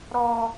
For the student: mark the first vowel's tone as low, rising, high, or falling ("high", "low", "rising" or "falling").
high